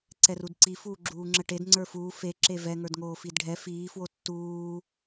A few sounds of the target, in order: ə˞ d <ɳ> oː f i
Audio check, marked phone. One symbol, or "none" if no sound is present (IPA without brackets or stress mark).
ŋ